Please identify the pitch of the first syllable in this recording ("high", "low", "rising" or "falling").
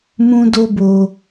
high